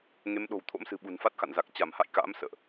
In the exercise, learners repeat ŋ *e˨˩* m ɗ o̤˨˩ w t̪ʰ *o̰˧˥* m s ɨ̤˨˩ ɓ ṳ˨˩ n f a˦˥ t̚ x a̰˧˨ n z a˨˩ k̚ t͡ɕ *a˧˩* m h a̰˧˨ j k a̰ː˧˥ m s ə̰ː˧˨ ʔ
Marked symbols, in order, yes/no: no, yes, yes

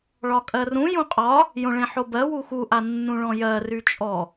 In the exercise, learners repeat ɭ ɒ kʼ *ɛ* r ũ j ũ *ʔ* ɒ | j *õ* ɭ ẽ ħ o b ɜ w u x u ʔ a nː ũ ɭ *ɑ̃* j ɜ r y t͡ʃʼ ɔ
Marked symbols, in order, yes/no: no, no, yes, no

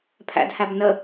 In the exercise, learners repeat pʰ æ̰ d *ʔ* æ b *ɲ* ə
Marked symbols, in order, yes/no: no, no

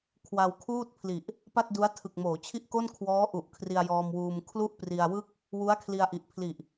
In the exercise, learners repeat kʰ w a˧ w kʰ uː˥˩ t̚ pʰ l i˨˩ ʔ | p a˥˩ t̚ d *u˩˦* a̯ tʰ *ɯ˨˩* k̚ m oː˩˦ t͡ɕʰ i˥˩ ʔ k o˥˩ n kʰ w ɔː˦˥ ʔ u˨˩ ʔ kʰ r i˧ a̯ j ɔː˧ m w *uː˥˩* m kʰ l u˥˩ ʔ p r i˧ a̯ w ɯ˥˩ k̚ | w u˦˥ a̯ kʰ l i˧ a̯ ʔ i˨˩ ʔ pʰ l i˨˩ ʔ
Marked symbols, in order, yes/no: no, yes, no

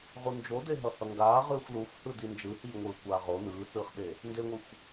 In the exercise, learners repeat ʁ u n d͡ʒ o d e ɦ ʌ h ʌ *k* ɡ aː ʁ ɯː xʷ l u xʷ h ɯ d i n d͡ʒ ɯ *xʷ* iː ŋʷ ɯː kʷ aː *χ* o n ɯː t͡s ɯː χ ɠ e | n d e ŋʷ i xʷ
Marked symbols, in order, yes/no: no, no, no

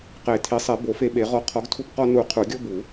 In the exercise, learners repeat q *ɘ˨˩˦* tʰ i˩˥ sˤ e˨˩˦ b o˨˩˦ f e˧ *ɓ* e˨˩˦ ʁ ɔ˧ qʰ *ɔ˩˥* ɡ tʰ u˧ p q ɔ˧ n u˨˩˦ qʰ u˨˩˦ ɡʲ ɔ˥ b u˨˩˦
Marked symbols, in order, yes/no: no, yes, yes

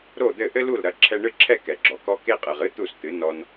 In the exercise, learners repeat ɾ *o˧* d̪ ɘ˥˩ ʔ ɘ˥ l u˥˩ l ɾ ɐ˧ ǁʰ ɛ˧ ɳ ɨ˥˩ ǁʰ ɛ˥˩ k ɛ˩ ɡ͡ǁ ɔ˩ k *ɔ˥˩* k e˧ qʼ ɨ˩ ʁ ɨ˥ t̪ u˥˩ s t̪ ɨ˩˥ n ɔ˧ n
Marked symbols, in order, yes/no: no, no

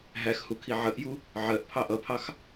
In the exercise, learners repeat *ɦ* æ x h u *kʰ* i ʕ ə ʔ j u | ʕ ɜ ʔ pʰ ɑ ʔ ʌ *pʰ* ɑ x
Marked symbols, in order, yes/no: yes, yes, yes

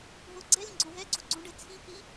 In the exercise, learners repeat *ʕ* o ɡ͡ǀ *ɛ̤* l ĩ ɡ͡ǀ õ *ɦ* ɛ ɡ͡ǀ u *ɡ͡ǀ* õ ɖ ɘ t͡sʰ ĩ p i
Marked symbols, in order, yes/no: no, no, yes, yes

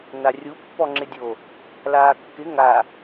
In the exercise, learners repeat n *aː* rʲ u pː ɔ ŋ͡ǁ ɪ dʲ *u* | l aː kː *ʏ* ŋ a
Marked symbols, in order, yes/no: no, no, no

